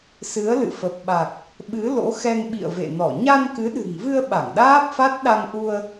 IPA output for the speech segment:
s ɨ˨˦ ə̯ l ɨ̰˧˨ f ə˨˩ p̚ ɓ a˨˩ k̚ | ɓ ɨ˨˦ l o̰˧˥ x ɛ˧ ŋ ɓ ḭ˧˨ ə̯ v ḛ˧˨ n ɔ˧˩ ɲ a˧ n k ɨ˨˦ ɗ ɨ̤˨˩ ŋ v ɨ˧ ə̯ ɓ a˧˩ ŋ ɗ aː˦˥ p̚ f a˦˥ t̚ ɗ a˧ ŋ ʔ u˧ ə̯

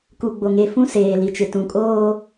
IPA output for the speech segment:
k u˨ ɡ͡b o˨ ŋ e˨ f ũ˦ s eː˨ l i˨ t͡ʃ ɪ˨ t ũ˨ kʼ oː˦

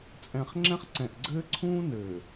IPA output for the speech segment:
t͡sʼ ɛ̃˨ χ ŋ͡ǁ ɛ̃˦ χ ǀ ɛ̃˨ ʔ ɡ͡ǀ ɘː˦ ǀʰ ũː˦ n ɘː˨

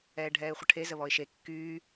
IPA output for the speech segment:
ɛː ɖʱ ɛː ɪ̯ χʷ ə ʈʰ e z ə β ɔ ɪ̯ ʃ e kː yː

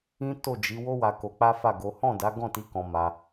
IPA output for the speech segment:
ĩ˦ t o˦˨ d͡ʒ i˨˦ w o˦ w a˧ k o˧ k͡p a˦ f a˦˨ ɡ o˨˦ h ɔ̃˦˨ d a˨˦ ɡ ɔ̃˦˨ t i˨˦ k ɔ̃˧ m a˧

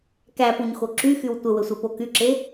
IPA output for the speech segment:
k æ p u ɲ x o ǁ y x y w tʷ ə w ə sʷ e p o k y ǁ e

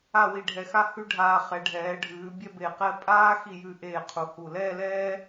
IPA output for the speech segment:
a˥˧ w i˧ ɖʱ ɛ˧ x a˥ h ʉ˥ ɖʱ aː˧ χ ɛ˩˧ ɖʱ ɛː˩˧ ɖʱ ʉː˩˧ bʲ ɛ˥˧ b e˧˩ q ɛ˥˧ pʼ aː˥ x i˧˩ j ʉ˧˩ ʔ eː˧˩ qʰ u˩˧ h u˧˩ l ɛː˥˧ l ɛː˥

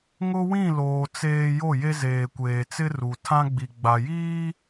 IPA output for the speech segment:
ŋ ʊ˦ w ĩ˦˨ l oː˨ t͡s eː˨ j o˦˨ j e˦ z eː˨ kʷ eː˨ t͡s ɪ˦ r u˨ tʰ ã˦ ɡ͡b i˨ ɡ͡b a˨ j iː˦

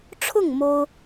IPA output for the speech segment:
ʈ͡ʂʰ ʊ˥˩ ŋ m o˥ ʊ̯

